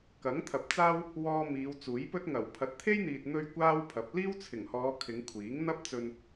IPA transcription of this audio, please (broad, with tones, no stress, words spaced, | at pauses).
kɐ˨˥ŋt̪ʰɐ˨p̚t͡saː˥w | wɔː˧ miː˨˧wt͡suː˨˥jpɵ˥t̚ ŋɐ˨˩wpʰɐ˨˥t̚ t̪ʰe˥jn̪iː˨t̚ n̪ɵ˥ɥ kʷaː˥wpʰɐ˨˥p̚ liː˥wt͡sʰɪ˨˩ŋhɔː˨˧ kʰɪ˨˧ŋkʷʰiː˨˥ŋ n̪ɐ˥p̚t͡sɵ˧n